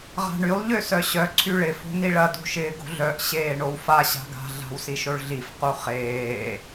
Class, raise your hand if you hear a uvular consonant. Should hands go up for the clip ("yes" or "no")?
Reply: yes